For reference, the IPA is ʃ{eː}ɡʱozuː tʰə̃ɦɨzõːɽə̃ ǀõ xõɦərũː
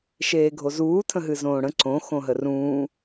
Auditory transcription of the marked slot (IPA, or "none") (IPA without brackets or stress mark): eː